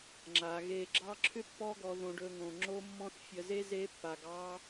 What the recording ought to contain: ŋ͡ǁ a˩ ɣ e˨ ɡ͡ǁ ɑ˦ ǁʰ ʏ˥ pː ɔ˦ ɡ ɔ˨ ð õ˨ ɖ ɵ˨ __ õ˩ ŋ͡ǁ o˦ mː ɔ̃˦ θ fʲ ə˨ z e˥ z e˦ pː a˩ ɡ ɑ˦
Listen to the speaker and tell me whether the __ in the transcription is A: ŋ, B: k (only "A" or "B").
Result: A